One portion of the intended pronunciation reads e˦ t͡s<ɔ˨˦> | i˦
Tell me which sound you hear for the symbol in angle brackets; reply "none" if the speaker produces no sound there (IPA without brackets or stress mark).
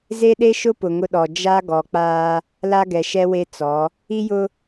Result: ɔ˨˦